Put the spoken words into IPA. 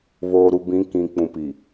β oː˨ ɾ u˨ b ĩ˨˦ k ĩ˨ k͡p ũ˨ p i˨

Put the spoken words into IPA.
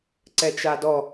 ǀ ɛ t͡ʃ a d ɔ

